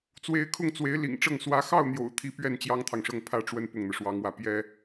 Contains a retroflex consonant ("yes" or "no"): yes